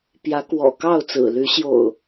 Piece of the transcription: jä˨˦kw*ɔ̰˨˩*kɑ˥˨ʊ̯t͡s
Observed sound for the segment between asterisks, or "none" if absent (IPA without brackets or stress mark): ɔ̰˨˩